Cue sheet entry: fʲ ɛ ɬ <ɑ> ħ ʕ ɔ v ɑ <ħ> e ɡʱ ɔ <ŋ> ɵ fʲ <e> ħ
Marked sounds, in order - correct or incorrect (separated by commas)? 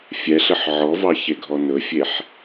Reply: incorrect, incorrect, incorrect, correct